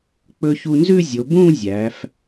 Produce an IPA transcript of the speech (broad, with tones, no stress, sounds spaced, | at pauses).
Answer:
k͡p ɵ˧ ç u˧ n z ʉ˥˧ zʲ o˩˧ b ũ˥˧ zʲ æ˩˧ f